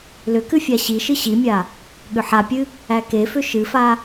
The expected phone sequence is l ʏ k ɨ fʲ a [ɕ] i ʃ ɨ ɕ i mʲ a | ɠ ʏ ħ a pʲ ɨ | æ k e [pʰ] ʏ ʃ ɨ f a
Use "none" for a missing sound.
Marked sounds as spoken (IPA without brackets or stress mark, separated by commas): ɕ, f